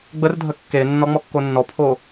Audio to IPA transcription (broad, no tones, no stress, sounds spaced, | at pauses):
ɡ͡b ə r dʱ ə kː e nː ɔ ŋ͡m ɔ kː o nː ɔ pʰ o